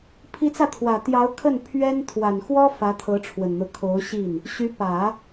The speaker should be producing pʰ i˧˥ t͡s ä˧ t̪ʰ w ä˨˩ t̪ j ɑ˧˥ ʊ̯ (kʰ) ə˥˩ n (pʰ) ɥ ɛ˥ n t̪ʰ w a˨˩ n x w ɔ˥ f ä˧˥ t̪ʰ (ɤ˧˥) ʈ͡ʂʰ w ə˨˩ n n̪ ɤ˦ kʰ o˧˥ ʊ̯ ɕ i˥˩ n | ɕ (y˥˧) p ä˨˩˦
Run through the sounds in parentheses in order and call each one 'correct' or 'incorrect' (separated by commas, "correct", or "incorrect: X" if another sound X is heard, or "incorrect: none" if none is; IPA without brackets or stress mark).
correct, correct, correct, incorrect: y˧˥